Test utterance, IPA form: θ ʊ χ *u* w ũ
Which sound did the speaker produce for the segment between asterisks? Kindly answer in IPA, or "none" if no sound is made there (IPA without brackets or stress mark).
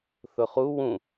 u